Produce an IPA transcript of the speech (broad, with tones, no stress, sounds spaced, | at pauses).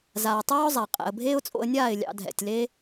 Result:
z aː˨ tˤ aː˦ ʊ̯ zˤ a˨ qʼ ɛ̰˨ ə̯ bʱ eː˦ ʊ̯ t͡sʼ o̰˧ ə̯ nʲ aː˦˨ ɪ̯ lʲ ɑ̰˧ dʱ ɛ̰˨ tʲ l e˦